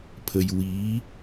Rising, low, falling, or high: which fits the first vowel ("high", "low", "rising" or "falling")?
high